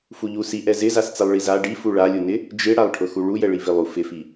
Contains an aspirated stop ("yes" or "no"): yes